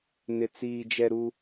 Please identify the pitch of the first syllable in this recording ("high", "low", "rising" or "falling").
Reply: low